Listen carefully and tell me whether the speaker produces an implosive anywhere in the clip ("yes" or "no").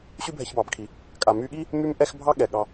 yes